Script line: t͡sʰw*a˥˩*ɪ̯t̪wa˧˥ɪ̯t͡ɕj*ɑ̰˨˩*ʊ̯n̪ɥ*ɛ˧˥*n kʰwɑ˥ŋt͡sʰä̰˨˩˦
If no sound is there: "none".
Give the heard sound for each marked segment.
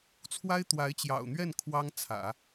a˥, ɑ̰˨˩, ɛ˥˩

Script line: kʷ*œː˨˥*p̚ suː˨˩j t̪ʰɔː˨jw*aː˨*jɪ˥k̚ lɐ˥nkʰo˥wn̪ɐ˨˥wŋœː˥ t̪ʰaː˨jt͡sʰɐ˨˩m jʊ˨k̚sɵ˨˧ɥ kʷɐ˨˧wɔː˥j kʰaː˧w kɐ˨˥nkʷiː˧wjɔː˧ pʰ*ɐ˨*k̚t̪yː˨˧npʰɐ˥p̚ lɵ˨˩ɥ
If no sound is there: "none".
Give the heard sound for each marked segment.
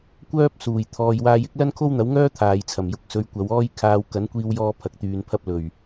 œː˥, aː˧, ɐ˨

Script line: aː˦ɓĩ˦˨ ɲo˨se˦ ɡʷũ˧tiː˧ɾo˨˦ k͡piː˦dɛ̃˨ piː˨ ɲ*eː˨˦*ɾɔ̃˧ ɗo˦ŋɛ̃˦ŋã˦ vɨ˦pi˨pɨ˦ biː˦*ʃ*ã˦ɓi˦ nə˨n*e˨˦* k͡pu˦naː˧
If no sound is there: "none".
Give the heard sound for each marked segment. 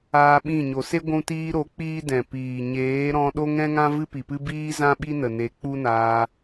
eː˨˦, z, e˨˦

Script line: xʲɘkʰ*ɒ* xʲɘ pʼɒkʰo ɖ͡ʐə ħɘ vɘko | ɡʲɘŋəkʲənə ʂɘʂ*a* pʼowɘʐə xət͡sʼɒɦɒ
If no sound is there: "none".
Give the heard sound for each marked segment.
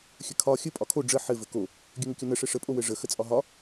ɒ, ə

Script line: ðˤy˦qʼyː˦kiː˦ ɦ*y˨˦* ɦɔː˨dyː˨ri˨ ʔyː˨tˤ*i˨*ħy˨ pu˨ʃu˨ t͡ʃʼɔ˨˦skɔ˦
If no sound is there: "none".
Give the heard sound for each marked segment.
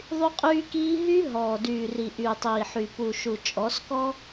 y˦, iː˨

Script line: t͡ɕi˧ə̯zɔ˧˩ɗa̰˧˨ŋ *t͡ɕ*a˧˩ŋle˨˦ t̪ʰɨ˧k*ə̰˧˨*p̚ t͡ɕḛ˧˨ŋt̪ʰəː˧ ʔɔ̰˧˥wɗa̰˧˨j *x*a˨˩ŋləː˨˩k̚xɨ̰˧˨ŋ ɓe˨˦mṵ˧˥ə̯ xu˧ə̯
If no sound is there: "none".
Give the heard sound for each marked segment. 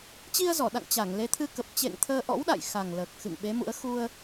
t͡ɕ, ə˨˩, x

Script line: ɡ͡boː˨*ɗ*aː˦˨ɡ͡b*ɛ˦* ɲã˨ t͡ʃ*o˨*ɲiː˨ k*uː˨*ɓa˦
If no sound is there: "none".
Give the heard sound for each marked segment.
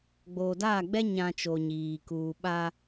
d, ɛ˦, o˨, uː˨

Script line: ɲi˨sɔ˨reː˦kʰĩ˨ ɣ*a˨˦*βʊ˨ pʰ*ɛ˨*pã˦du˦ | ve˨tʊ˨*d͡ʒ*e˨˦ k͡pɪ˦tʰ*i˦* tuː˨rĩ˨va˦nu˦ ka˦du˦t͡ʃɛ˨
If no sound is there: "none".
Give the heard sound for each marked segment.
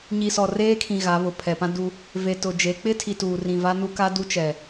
a˨˦, ɛ˨, d͡ʒ, i˨

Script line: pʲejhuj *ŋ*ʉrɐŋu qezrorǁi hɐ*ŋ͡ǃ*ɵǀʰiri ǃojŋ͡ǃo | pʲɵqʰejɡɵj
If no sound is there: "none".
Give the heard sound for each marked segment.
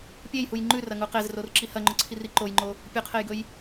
ŋ͡ǃ, ŋ͡ǃ

